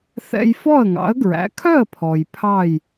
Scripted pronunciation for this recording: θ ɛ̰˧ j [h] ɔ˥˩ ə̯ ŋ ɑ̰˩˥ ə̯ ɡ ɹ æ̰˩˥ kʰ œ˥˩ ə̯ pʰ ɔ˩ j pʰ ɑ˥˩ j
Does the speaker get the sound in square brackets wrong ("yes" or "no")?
yes